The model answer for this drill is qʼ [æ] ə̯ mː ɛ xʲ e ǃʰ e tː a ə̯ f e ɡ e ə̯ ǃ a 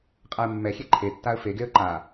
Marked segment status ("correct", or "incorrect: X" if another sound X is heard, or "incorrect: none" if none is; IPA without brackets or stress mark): incorrect: a